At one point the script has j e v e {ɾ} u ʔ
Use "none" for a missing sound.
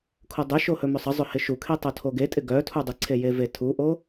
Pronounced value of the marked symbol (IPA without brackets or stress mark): tʰ